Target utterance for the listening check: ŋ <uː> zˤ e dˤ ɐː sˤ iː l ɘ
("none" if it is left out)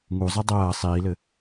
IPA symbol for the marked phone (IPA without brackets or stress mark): u